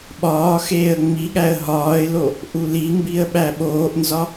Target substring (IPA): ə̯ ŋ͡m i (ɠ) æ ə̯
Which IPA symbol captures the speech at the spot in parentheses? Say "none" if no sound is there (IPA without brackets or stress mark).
ɠ